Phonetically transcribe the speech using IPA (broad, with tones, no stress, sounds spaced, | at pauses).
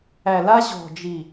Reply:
æ˨ l a˦ ʑ ɔ̤˨ d͡ʒ i˨